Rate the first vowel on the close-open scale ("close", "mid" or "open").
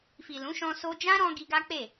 close